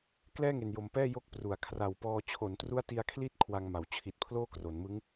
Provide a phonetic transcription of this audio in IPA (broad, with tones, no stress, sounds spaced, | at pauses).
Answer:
k l ɛː˥˩ ŋ e˨˩ n j o˨˩ m p ɛː˥˩ j o˥˩ k̚ p r u˨˩ a̯ kʰ r a˨˩ w p ɔː˧ t͡ɕʰ o˩˦ n t r u˦˥ a̯ t i˧ a̯ kʰ l i˦˥ t̚ kʰ w a˧ ŋ m a˩˦ w t͡ɕʰ i˨˩ t̚ pʰ l oː˥˩ k r o˩˦ n m ɯ˦˥ ŋ